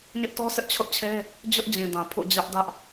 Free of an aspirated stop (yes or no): no